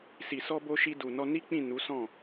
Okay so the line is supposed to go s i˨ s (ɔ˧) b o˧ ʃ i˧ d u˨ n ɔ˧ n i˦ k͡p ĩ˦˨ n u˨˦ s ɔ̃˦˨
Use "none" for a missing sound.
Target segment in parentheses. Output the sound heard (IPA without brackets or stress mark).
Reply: ɔ˧